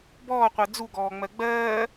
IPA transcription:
b ɔː qʷ ɜ d͡z u ɡ ɔː ŋ͡m ɜ ɡ͡b ɜː

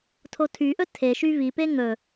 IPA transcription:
tʰ o tʰ y ʔ ɵ tʰ e ʃ y v i p e ŋ ɵ

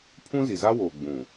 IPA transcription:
pʰ ũ˦ z i˨ z a˦ w oː˨ ɡ͡b ũ˨

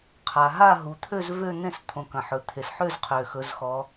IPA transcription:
qʰ a˩ ɦ a˥˧ ɦ u˩˧ t̪ʰ ø˥˧ z v ø˥˧ n̪ ẽ˥˧ s t̪ʰ õ˩˧ k ɐ̃˩ ħ ɵ˩ t̪ʰ e˩ s ħ ø˥˧ z qʰ ø˩ x ɵ˩˧ z x ɔ˩˧

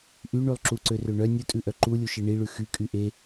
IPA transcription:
ʔ y ɳ y lˠ ǁ u ǀ ø r ø ɳ œ nʲ u tʼ ʉ ʔ œ ǃ u lʲ u ʃ e ɳ i ɭ ʉ x y kʼ y ʔ e

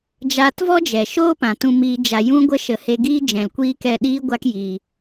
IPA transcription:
d͡ʒ aː˧ t v ɔ˦ d͡ʒ ɛ˨ ʃ oː˦ p ã˨ t ũ˧ m iː˧ d͡ʒ a˨ j ũ˧ ɡʷ ə˧ ʃ ə˨ h e˧ ɡ iː˦ d͡ʒ ɛ̃˨ l kʷ iː˦ k ɛ˦˨ ɗ iː˦ ɡʷ a˦ k j iː˧

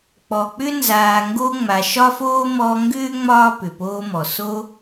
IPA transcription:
k͡p ɔ˨ k͡p ʏ˥ n z aː˨ ŋ ɡ o˦ ŋ͡m a˨ ʃ ɒ˥ f oː˥ m ɔː˦ ŋ ɡ ʏː˥ ŋ͡m ɒː˥ p ʏ˩ p oː˦ m ɔ˩ s o˦

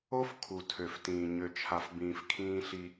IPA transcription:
o˦ f kʰ u˨ tʰ ø˨ f t ĩː˨ ɲ ø˨ t͡ʃʰ a˨ f b ĩː˨ f kʰ ĩː˦ ɬ i˦

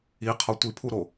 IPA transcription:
i qʰ ɒ tʷ i pʰ u ɾ o

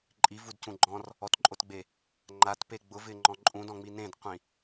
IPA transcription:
ǃʼ i v u d c ũ ɡ͡ǃ ɔ̃ r | ɔ t ǃʼ o t ɡ͡b e | ŋ͡ǃ a t p e ɡ͡b ʊ v ɪː ŋ͡ǃ ɔ̃ ǃʼ ũ d ɔ̃ ŋ͡m i n ẽ d qʷ ĩ

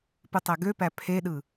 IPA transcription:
p ɯ tˤ æ ɡ ø p æ pʰ e ɗ ɯ

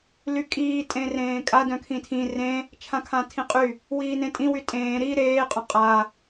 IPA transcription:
l y kʼ iː tʼ ẽ r ẽː kʼ a d œ̃ kʰ ĩ tʰ ĩ r ẽ | t͡ʃʰ ã kʰ ã tʰ ĩ qʼ y | w iː n ẽ tʼ ĩ w y tʼ ẽː ɾ i ɾ eː qʼ œ̃ qʼ a

